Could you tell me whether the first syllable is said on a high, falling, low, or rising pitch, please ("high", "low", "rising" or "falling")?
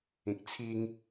low